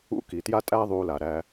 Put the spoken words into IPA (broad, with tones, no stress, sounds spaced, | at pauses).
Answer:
ṵ˦ k i˨ t j a˦ tʼ æ˦ ðˤ u˧ l a˨ ɾ æ˧